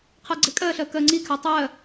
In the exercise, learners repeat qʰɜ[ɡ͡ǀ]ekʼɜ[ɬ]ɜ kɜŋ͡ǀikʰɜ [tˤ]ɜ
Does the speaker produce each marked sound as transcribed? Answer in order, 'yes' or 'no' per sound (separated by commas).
yes, yes, yes